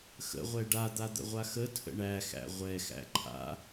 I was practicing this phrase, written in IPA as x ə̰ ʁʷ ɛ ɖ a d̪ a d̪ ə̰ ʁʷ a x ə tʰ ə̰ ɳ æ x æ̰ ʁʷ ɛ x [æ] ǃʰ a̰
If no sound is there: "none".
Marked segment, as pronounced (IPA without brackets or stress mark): æ̰